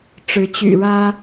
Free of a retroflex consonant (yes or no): no